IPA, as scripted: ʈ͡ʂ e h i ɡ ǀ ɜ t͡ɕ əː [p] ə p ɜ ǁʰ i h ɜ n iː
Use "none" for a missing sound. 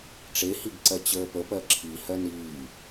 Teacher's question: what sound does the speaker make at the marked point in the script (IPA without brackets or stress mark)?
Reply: p